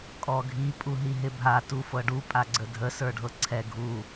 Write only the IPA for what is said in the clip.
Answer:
kʼ ɔ ɡʱ i pʼ u ɦ i ɦ ɪ bʱ a t u f ɤ ɖ u pʼ a ɡ͡ǀ ə dʱ ə s ə˞ ɖʱ ɤ ǀʰ ɛ ɡʱ u

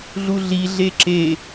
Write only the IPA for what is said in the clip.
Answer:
ɮ u ɮ i ɮ e ǁ e

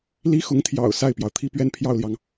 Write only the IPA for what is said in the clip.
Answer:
l i˥ x ʊ˧˥ ŋ t̪ʰ j ɑ̰˨˩ ʊ̯ s a˥˩ ɪ̯ p j ɑ˩ ʊ̯ t̪ʰ i˥˧ p ɥ ɛ˥˧ n pʰ j ɑ˥˩ ʊ̯ l j ɑ˩ ŋ

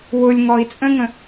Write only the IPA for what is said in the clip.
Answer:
w ʊ lʲ ŋ ɔ i̯ t͡sʼ ə̃ ŋ ə̃

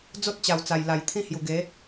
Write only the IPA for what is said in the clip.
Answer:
d͡z o˦ t̚ t͡ɕ a˨˩ w t͡s a˨˩ j l a˨˩ j t̪ʰ ĩ˥˧ h j u˨˩ ɡ e˨˦

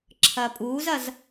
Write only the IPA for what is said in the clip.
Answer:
ǁʰ ɐː pʼ uː z ɐ z

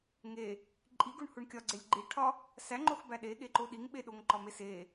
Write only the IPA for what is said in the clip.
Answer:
ŋ e | ǃʼ i ɡ u ɳ h u ɳ kʲ ɒ ɡ͡ǀ e lʲ ɡ͡ǃ i ʈʰ ɒ | s æ ŋ͡ǃ o x b æ ɗ e ɠ e ǃ o ɗ i ŋ ɓ e ɗ o ŋ ǃ ɒ m e s e

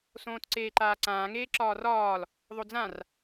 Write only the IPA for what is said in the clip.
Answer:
s õː t ǀ eː ǃ aː ǀ ãː ŋ eː ǁ ɒː r ɒː l | ðˤ o d͡z ã r

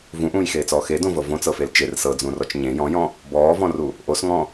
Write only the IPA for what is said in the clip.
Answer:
v ũ ʔ ũː j x eː t͡s ɔː x e d õ v ɤ v õ t͡s ɤ f e l t͡ʃ e r s ɤ d͡z ũ r ɔ t͡ʃ ɲ ẽ j ɔ̃ j ɔ̃ | b ɔː v ɔ̃ r u | ʔ o s ŋ ɔ̃

